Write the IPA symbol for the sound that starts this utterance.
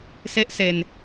s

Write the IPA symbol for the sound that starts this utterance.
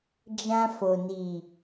d͡ʒ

